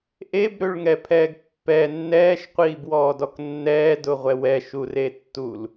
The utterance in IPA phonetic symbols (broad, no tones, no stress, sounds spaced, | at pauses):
ʔ e b ɾ ø ɭ ŋ ɛ pʰ ɛː ɡ pː ɛ nː ɛː ʃ qʷ iː b w ɔː d ɔ k nː ɛː d ʊ ʁʷ ɛ w ɛ ʃ u r e tː u l